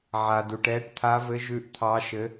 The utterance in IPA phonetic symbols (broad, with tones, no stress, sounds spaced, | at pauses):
ʕ a˩ d u˩ ʈ ɛː˨˦ ʈ t̪ʰ a˨˦ v ɘ˨˦ ʒ ʉ˨˦ ʔ t̪ʰ ɑ˨˦ ʃ ɘ˨˦